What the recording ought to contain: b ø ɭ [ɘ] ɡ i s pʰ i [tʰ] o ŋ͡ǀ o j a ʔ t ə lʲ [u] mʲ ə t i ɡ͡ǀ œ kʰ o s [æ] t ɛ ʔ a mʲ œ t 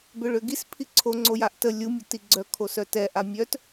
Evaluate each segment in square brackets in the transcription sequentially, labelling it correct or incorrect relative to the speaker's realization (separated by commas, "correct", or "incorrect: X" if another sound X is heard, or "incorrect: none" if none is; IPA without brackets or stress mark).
incorrect: ø, incorrect: ǀʰ, correct, incorrect: œ